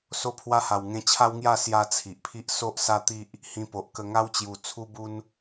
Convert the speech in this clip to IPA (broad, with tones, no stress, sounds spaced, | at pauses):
s o˧ pʰ w a˧ h a˨˩ w ŋ ẽ˧ t͡ɕʰ a˦ w ŋ j a˥˧ s j a˦ t͡sʰ i˨ ʔ pʰ i˦ ʔ s o˦ ʔ s a˦ t̪ i˦ ʔ | h ĩ˧ p o˨ ʔ k ə˧ ŋ a˦ w t͡ɕ j u˨˩ t͡sʰ u˦ b u˦ n